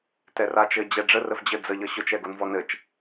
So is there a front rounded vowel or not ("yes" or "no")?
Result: no